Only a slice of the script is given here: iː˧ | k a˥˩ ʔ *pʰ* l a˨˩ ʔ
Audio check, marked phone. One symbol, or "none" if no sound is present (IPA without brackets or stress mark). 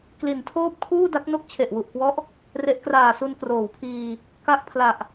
pʰ